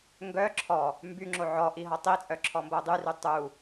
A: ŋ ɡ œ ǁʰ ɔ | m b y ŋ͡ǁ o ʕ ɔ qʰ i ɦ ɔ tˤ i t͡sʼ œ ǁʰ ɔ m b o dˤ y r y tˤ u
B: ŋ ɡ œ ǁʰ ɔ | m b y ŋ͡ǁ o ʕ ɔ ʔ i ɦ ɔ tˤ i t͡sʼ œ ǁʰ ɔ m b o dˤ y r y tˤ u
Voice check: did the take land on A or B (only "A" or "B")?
B